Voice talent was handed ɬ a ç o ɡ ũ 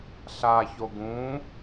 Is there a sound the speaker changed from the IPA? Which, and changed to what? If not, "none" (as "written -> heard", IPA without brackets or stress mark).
none